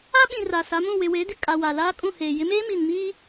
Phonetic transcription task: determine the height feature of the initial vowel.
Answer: low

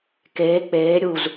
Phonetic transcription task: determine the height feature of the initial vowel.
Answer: mid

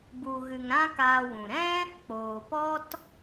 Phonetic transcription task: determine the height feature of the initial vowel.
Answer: high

